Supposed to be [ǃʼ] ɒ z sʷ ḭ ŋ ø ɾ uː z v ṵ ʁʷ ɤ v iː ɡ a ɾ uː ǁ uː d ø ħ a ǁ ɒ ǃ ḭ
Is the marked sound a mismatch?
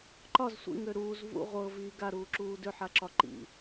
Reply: yes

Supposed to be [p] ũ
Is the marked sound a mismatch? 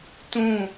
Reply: yes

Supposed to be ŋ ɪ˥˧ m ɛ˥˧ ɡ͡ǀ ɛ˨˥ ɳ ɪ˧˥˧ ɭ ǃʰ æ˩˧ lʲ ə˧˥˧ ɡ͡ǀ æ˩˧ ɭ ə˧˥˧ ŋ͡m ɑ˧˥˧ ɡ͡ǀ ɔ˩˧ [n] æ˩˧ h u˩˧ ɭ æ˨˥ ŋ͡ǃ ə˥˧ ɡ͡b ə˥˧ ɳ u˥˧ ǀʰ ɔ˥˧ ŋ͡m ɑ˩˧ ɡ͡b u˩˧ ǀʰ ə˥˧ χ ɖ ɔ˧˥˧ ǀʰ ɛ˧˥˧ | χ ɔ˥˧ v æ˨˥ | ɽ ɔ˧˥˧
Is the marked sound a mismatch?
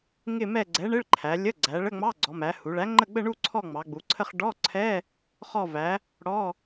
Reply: yes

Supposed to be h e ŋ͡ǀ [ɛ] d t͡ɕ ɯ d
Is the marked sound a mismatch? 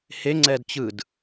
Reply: no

